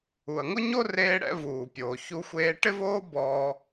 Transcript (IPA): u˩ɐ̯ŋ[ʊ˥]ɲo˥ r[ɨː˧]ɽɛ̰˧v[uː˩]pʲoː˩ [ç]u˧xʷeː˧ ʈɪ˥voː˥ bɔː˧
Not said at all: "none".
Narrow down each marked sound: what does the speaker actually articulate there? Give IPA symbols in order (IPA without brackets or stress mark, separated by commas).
ʊ˥, eː˧, uː˩, ç